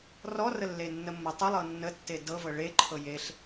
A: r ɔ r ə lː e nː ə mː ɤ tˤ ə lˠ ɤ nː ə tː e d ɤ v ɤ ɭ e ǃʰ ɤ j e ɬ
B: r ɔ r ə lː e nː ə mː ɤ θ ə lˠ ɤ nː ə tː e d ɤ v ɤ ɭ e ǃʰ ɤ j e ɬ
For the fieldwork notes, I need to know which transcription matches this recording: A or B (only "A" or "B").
A